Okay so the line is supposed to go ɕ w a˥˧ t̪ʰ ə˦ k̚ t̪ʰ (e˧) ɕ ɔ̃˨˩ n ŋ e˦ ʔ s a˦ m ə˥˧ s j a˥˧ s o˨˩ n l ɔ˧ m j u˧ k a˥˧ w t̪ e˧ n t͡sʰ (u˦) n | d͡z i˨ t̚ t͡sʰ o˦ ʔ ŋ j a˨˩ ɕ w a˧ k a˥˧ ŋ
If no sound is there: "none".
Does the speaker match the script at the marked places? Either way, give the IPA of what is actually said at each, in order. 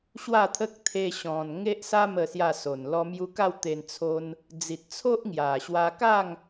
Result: e˧, o˦

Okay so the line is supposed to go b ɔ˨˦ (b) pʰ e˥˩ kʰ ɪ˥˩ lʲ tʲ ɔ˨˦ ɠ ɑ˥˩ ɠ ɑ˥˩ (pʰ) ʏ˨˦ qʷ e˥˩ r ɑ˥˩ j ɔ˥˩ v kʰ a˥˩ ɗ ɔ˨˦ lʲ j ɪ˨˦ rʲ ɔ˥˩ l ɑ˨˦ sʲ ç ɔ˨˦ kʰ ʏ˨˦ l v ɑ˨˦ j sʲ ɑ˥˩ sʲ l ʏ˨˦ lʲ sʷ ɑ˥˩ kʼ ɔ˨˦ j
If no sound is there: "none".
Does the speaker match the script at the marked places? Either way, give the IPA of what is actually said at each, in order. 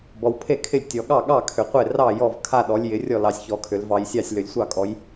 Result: w, kʰ

